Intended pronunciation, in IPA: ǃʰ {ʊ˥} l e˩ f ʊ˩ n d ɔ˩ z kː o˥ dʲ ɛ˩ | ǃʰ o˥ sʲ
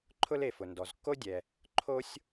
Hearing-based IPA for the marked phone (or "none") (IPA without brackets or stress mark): ʊ˥